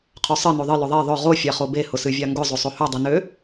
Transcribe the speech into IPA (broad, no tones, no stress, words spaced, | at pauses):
qʰøsˤɨ noðˤɨ lʊðˤe ðˤʊ ʁo fʲaχobe hʊsɨvʲaŋɡʊ zˤosˤohø dˤɨnø